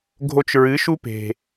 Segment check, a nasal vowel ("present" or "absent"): absent